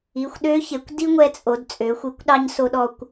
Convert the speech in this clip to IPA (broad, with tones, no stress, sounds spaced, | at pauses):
i˩˧˩ xʷ ɗ ø˧˥ ç e˩˧ kʷ d i˥ ŋʷ ɛ˧ t͡sʼ o˩˧ d t͡sʼ ø˩˧ xʷ i˩˥ kʷ ɗ ɑ˧ ɲ s o˧ ɗ ɔ˧ kʷ